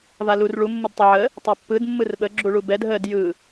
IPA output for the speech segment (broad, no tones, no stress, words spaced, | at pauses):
valur ɭu mːɯdtˤəʕə | tˤɛpːɯd mːɯrɓə ɡ͡ǁuɭubɛd ɦəd jɯ